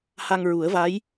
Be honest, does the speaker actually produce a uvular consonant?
no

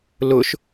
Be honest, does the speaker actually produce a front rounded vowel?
no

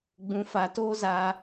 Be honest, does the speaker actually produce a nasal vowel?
yes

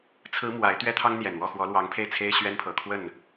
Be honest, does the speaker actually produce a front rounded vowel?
no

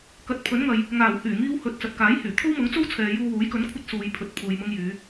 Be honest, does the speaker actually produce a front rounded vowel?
yes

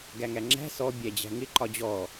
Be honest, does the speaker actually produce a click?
yes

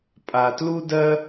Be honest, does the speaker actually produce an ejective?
yes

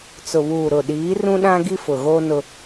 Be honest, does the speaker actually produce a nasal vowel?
yes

